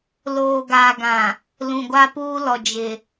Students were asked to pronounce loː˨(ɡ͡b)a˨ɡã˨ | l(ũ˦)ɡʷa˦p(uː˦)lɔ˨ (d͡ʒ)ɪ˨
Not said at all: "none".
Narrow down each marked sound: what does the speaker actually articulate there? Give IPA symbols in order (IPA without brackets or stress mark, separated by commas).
ɡ, ũ˨, uː˦, d͡ʒ